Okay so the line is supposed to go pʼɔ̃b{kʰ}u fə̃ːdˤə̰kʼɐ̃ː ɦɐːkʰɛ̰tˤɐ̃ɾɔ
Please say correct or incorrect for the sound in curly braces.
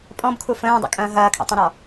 correct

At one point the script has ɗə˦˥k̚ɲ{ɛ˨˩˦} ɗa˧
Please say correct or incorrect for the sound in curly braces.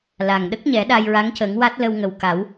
correct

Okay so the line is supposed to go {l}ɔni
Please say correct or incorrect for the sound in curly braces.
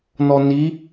incorrect: n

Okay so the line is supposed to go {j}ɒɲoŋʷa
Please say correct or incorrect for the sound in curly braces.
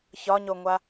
incorrect: ç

